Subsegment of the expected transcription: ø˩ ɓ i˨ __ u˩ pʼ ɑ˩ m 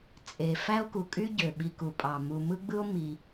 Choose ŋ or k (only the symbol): k